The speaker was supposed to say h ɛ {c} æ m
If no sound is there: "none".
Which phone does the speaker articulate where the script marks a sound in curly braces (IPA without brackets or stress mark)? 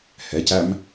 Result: c